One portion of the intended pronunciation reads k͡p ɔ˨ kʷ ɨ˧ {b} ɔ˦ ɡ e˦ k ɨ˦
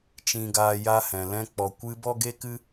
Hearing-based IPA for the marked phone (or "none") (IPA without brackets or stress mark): b